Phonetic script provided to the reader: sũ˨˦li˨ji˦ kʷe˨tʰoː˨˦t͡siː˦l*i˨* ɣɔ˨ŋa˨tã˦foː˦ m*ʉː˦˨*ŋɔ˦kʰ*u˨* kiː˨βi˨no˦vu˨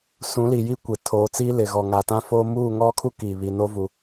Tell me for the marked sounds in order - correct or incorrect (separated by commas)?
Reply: incorrect, incorrect, incorrect